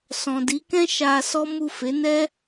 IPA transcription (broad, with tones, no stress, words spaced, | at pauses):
sɔ̃˨di˨˦kɛ̃˦ ʃa˧sɔ˦ mu˦˨ fe˨˦nɛ˦